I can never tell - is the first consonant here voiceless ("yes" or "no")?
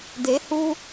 no